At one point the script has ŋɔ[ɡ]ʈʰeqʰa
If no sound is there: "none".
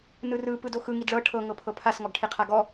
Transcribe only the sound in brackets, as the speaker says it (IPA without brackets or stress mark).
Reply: ɡ